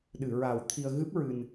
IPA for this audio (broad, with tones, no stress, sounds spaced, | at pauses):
ɗ ɨ˨˩˨ ɹ a˨˩ w t̪ʰ i˧ ə̯ ɣ ɨ˦˥ p̚ ɹ ɨ˧ n